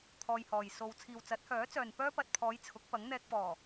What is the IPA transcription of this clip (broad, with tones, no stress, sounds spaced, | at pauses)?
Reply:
t̪ʰ ɔː˧ j h ɔː˨ j s o˧ w t͡sʰ iː˨ w t͡s ɐ˨˥ t̚ h œː˨˥ t͡s œː˨ n p œː˥ p ɐ˨ t̚ pʰ ɔː˨˧ j t͡sʰ ʊ˨˥ k̚ p ɐ˨˥ ŋ n̪ ɛː˧ k̚ p ɔː˨˩